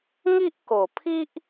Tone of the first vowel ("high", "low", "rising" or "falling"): high